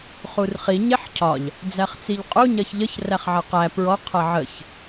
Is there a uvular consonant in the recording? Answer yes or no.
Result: yes